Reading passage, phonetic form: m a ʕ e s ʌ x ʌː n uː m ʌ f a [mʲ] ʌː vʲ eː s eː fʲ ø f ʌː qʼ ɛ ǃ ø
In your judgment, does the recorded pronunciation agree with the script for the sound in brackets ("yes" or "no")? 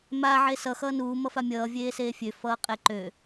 yes